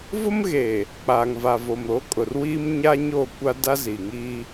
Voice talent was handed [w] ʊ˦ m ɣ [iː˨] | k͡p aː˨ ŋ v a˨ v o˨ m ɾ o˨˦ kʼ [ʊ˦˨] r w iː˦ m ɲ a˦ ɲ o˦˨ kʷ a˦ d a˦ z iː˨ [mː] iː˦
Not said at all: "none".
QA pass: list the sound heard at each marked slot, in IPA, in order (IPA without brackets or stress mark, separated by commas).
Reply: v, eː˨, ʊ˨, ŋ